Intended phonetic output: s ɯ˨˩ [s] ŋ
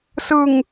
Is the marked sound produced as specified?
no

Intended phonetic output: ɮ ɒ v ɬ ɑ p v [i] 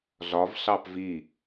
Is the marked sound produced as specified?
yes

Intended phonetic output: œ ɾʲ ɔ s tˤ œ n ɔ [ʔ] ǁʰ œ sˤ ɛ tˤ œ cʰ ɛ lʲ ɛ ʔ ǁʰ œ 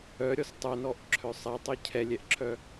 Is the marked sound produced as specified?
yes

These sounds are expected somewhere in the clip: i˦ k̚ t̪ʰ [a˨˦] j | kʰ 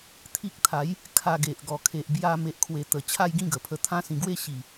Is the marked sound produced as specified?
yes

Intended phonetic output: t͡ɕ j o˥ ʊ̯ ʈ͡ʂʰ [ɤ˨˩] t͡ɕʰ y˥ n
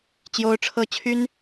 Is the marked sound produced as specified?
no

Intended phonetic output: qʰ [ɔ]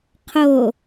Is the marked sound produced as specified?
no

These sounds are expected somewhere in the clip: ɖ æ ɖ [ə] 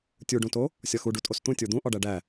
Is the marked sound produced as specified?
no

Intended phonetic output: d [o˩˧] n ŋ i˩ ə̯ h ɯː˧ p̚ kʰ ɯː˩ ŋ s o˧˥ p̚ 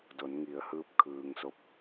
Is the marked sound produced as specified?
yes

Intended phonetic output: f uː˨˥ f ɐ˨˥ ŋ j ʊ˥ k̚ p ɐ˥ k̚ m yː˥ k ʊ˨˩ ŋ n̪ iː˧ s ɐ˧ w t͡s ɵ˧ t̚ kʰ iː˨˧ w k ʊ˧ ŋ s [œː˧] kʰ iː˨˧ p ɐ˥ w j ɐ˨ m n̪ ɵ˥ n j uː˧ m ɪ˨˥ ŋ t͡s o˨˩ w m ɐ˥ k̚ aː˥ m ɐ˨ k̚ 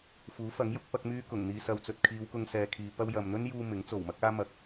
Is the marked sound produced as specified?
no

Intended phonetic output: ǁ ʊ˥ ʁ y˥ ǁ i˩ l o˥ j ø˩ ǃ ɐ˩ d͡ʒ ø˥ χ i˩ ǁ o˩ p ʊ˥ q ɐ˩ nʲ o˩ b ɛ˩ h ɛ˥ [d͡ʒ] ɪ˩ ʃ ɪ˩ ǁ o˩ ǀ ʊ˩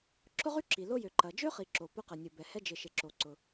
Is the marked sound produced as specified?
yes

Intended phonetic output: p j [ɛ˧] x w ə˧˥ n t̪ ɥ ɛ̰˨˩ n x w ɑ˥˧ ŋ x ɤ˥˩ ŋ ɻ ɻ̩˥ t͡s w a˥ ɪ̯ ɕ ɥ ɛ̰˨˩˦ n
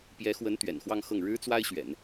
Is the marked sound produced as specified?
no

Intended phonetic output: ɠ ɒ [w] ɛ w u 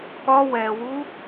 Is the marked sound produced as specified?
yes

